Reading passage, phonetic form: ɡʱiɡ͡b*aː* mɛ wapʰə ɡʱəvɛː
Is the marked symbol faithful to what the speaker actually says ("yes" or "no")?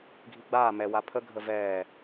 yes